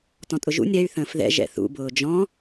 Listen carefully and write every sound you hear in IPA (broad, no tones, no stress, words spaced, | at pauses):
tɔ̃tʼʊʒṵnʲ ɾɛy̯ θə̃ːfðɛ̰ ʒɛ̰θṵbʊː d͡ʒɔ̃